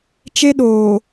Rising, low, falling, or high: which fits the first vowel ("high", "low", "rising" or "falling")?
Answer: high